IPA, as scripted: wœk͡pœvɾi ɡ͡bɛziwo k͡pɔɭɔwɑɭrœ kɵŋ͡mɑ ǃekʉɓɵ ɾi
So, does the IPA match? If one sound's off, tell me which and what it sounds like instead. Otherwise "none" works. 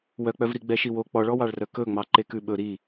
z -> ʃ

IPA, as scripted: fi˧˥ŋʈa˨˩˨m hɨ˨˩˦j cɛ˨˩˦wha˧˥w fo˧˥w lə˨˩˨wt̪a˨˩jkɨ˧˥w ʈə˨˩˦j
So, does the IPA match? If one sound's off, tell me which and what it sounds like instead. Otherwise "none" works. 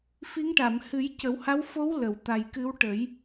ɛ˨˩˦ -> ə˨˩˦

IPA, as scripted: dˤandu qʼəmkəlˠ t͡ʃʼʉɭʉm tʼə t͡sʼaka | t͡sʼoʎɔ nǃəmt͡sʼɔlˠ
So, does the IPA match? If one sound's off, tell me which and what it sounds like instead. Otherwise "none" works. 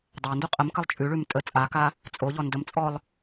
ǃ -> d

